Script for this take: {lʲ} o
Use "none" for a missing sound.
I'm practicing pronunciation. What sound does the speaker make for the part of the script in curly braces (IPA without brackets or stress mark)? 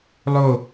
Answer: lˠ